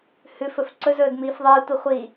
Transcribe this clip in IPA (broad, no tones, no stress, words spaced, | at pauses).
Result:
hʉfɵf ǀɵzɵːd miːfðˤɨːtʷi χʷi